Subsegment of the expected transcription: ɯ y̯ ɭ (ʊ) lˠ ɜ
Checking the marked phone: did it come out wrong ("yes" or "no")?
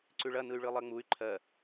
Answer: yes